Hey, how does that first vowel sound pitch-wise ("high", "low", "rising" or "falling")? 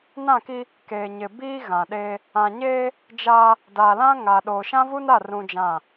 falling